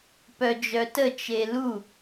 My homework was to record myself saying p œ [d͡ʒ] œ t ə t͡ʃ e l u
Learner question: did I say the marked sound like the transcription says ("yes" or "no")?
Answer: yes